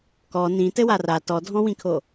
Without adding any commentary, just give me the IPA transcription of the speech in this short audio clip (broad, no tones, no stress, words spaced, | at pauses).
kɔ nĩtɘwa ra tɔdʱɔ̃wĩkʰo